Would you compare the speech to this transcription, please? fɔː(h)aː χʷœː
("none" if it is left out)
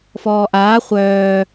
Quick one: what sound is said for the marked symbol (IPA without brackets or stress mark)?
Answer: ʔ